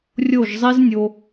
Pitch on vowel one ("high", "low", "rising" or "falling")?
falling